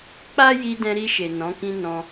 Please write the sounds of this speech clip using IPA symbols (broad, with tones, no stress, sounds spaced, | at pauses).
k͡p a˦ j i˧ d ɛ̃˧ ɾ i˧ ʃ e˨ n ɔ̃˨˦ k ĩ˦ n ɔ̃˧